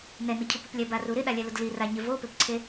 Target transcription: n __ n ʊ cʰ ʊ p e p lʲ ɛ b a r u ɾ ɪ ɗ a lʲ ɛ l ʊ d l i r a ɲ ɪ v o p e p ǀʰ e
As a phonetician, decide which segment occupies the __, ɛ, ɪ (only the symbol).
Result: ɛ